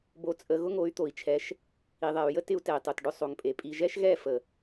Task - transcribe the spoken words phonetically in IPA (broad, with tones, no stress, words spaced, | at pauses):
bo˧t͡sʼə˧ ɣʊ˦ŋo˨˦y̯t̪o˨i̯t͡ʃʰɛ˨˦ʃ | i˨ðˤɛ˨y̯jə˦ tɪ˦u̯tɛ˨i̯tˤo˨tɖʊ˦ sˤo˨ŋpʼe˨ pʼi˧ ʒɛ˦ʃɣɛ˦˨fə˨